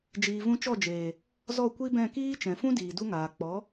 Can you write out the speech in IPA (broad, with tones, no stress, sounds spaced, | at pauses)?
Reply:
d͡ʒ iː˨ v ũ˧ t͡ʃ ɔ˦˨ d͡ʒ eː˨ | z ɔ˦˨ kʷ i˦ b ɛ̃˦˨ k iː˦ t͡ʃ ɛ̃˨ f ũ˦ d iː˨ d u˦ ŋ aː˨ k͡p ɔ˨˦